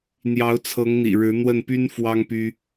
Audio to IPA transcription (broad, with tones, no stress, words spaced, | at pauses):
n̪jɑ˧˥ʊ̯t͡sʰɤ˧˥ŋn̪ḭ˨˩ ɻɻ̩˧˥n̪wə˥˩npy˥n fwɑ˥ŋpy˥